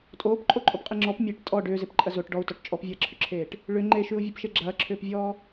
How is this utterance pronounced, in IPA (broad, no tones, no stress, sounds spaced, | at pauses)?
tʼ oː p ǃʼ o ǃʼ o p qʼ i ŋ͡ǁ ɔ p mʲ e ʈ tʼ ɔ ɖ ʏː z e p ǃʼ ɐ z o ʈ ɖ ɔ u̯ t ɔ ʈ t͡ʃʼ ɔ p vʲ ɐː ǁʰ ʏ ǁʰ eː ʈ | ɭ ʏ ŋ͡ǃ e ʃ ʉ u̯ vʲ ɔ p ʃ e ɡ͡ǁ ɐː ǁʰ ʏː p vʲ ɔː